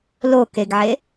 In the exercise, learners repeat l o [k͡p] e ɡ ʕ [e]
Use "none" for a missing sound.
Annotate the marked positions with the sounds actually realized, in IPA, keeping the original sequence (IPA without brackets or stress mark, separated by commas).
k, e